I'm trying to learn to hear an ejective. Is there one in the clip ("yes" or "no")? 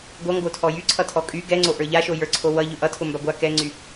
yes